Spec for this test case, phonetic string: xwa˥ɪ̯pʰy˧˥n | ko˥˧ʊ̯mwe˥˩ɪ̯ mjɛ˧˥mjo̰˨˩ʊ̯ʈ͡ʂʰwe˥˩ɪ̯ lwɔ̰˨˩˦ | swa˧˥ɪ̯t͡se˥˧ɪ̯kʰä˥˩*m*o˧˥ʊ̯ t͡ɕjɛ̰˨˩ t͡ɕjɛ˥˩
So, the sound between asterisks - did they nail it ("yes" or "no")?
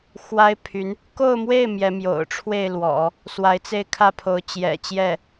no